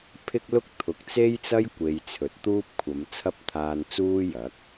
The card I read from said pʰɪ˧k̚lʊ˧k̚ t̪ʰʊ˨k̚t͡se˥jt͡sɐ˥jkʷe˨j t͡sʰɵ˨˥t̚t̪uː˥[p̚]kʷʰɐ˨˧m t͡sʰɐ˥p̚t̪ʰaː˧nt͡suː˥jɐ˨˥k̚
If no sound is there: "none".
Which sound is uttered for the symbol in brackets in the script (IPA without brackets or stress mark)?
p̚